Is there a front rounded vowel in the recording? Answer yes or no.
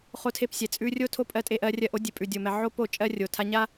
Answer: no